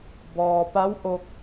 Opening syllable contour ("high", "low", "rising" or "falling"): low